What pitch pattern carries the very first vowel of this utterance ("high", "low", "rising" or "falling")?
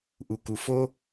low